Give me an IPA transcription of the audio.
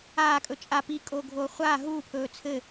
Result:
aː kʼ ɵ t͡ʃʼ a p i kʼ oː ɡʱ oː χʷ aː ɦ uː pʰ ɵː t͡sʰ ɘ

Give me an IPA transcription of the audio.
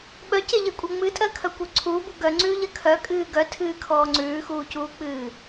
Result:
ɓ œ c e ʎ e kʷʼ ɜ ŋ͡m ɨ tʼ ɜ kʰ œ kʷ œ ǀʰ uː b u ɡ œ ŋ͡ǀ ʉː ʎ ɜ kʰ œ kʼ ɨː ɡ œ tʰ ɨː kʰ ɔː ŋ͡ǀ ʉː x uː c uː k͡p ɨː

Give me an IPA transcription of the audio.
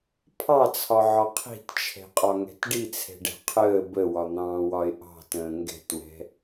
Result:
pʰ ɑ t͡sʰ ɒ ʕ ɒ qʰ i̤ t t͡ʃʰ ɛ̤ qʼ ɒ ŋ ɛ̤ t ɖ i t͡sʰ ɛ̤ ɖ ɛ̤ qʰ əː b ə w ɒ n̪ ɑ̃ː w ɒ ɪ̯ ʔ ɑ̤ t ə̃ː ŋ ɡ ɛ̤ t w ɛ̤

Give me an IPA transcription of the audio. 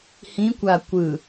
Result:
h ĩ kʷ a kʷ ɯ

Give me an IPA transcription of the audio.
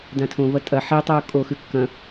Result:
d ã tʰ õ v ɐ tʼ ɐ ħ e tˤ oː kʼ o x ʉ kː ɐ̃

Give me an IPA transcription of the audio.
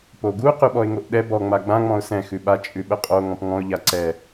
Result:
p o ɡ u q ʉ ɓ ɔ ɪ̯ ŋ o ʔ ɗ ɛ b ɔ ŋ͡m a ɡ͡b ã ŋ͡m ɔ̃ ʊ̯ s ɛ̃ x ʉ ɓ a t͡ʃʼ ʉ ɓ ə qʼ o ŋ ɔ̃ p ŋ ɔ̃ ʊ̯ ʎ a ǀ ɛ

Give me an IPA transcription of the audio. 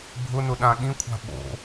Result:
bʱ ʊ n ʊ ɗ ã ɠ ĩ kʷʰ a̤ ɓ o̰

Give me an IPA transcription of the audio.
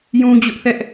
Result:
j ũ˦ d͡ʑ ʊ˦ ʔ θ ɛ˦ ʔ

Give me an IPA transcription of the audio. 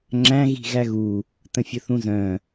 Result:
ŋ͡ǁ æ̃ ɣ i̤ ɣ æ ɣ u | t ə̃ fʲ ə θ ũ z œ̃

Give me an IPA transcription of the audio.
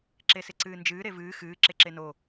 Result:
ǁ e s ɪ ǀ ɨː n d͡ʒ ɨː ɾ e v ɨː x ɨː ǁ e ǁ e n o

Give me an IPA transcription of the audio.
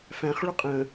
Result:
f æ̃ χ ɭ ʊ qʼ ə̃

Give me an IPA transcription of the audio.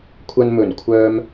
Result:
kʷʰ ɐ˧ n m ɵ˨˩ n kʷʰ œː˧ m

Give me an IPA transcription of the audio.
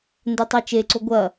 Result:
n d ɛ tˤ e t͡ʃ e ǀ o ɡʷ ɐ

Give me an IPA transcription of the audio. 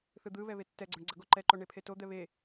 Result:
θ ɯ d̪ ɯ β ɛ β e tː ɛ ɡ͡ǀ o ɳ ɡ͡ǀ ʌ ɡ o ǃ ɛ ǃ o ɳ e pʰ e t o d̪ ɛ β e

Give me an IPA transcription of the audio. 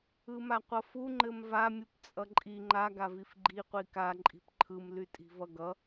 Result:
ɯ m a qʷ ʌ f u ŋ͡ǃ ɘ m v a mʲ u p t͡sʼ ʌ ǃʼ i ŋ͡ǃ a ɡ a v i f ɡ͡ǃ i qʷ i k a ǃʼ i̤ p ǃʰ ɯ m l y tʼ i̤ v ʌ ɡ ʌ

